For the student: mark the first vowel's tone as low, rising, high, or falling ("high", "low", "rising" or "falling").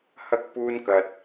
high